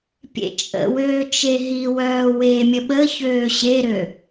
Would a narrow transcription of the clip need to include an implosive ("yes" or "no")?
yes